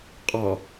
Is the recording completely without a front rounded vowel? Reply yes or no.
yes